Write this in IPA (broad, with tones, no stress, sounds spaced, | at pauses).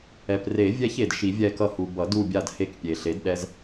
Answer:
ɛ˩ p r e˨˩˦ vʲ ɛ˦ ç e˩ d ʃ i˨˩˦ vʲ ɛ˦˨ k ʌ˦˨ h u˩ b ʌ˨˩˦ d u˦˨ bʲ a˦˨ d h e˦˨ k pʲ e˩ ɬ e˩˥ d ɗ ɛ˦ z